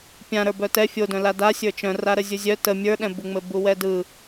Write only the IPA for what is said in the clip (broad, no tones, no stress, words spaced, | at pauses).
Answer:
pʲãɾə˞ bœtɛ fʲodœ̃ lada sʲə˞t͡ʃœ̃ra ɾəzʲuzʲœ tə mʲə˞ɗɛ̃buŋ͡mɘ buwɛdɯ